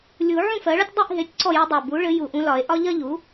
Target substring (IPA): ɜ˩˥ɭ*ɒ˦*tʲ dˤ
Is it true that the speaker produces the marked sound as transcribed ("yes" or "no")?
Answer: yes